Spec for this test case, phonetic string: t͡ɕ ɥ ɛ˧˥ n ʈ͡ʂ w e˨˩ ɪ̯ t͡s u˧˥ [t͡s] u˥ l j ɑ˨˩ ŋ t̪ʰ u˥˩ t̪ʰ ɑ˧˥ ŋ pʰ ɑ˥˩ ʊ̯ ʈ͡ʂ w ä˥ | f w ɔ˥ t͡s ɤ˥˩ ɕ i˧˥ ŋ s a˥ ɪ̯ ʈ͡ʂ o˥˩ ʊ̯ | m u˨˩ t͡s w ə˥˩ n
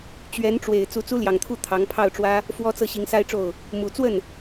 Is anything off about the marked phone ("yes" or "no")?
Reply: no